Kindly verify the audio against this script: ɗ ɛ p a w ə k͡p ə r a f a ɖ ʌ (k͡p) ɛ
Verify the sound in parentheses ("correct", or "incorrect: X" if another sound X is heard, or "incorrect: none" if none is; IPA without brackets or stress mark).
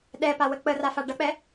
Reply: correct